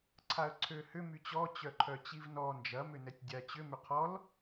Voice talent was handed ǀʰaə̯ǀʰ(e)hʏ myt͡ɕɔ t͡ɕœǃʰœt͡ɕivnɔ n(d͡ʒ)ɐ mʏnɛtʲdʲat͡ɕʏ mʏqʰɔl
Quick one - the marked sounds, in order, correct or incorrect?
incorrect, correct

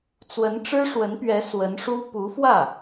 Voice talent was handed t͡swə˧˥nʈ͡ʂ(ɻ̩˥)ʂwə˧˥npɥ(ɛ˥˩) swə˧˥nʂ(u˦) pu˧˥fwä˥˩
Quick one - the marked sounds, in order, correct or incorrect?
correct, incorrect, incorrect

